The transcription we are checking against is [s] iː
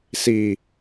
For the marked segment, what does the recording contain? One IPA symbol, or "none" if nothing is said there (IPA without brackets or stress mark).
s